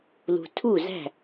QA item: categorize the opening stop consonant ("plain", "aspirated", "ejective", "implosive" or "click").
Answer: aspirated